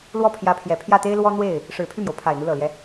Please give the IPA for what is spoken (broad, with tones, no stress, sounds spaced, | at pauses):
l w ɔ˥˩ pʰ j ä˧˥ pʰ j ɛ˨˩ pʰ j ä˥˩ t̪ e˥ ɪ̯ l w ɔ˥ n̪ w e˥˩ ɪ̯ | ʂ ɻ̩˨˩ pʰ y˥˩ m j o˩ ʊ̯ pʰ a˨˩ ɪ̯ n̪ u˦ l ɤ˨˩ l j ɛ˦